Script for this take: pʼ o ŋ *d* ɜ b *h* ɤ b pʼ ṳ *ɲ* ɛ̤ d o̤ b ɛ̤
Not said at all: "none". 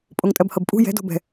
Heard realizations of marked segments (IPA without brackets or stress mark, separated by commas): tʼ, h, j